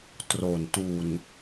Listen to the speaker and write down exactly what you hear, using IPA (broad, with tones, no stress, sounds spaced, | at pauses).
t r o˨˩ n t u˨˩ n